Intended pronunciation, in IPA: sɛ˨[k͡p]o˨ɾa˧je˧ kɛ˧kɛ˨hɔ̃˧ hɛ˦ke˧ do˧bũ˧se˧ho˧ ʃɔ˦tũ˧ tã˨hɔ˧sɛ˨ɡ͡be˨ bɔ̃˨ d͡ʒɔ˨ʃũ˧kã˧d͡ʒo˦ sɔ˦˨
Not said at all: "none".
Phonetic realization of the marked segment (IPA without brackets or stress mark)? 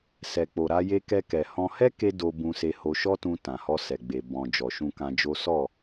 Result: k͡p